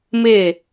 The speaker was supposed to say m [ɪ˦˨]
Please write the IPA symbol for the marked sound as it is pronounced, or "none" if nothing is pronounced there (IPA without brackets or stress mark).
ɪ˦˨